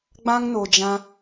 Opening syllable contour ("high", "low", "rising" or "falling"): high